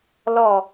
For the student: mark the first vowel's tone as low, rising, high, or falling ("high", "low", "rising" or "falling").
low